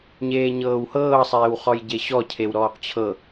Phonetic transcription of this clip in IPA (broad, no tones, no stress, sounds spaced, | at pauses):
ɲ eː ɲ ɤː w h ɤː sˤ eː w χ ɔ j ɟ e ɕ ɔ cʰ e w ɾ ɔː q t͡ɕʰ ɤ